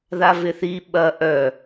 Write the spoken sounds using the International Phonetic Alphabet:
ð a v ɪ θ i ɓ ɐ ʔ œ

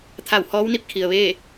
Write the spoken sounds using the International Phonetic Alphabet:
t̪ʰ a˧˩ w h ɔː˧˥ w n i˥˨ p̚ kʰ i˩ ə̯ ʋ eː˥˨

